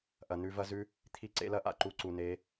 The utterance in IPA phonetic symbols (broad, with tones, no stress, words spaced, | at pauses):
ʔɐ˨nʉ˧vɐ˦zʉ˦ | t̪ʰi˦ǀḛ˦lɐ˦ ʔa̰˧ǃu˧ǀu˨ne˨˦